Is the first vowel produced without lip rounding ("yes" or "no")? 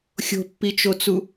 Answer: no